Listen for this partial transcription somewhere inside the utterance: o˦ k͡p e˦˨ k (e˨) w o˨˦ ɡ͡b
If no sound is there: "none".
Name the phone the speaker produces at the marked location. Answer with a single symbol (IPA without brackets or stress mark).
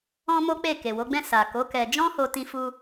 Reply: e˨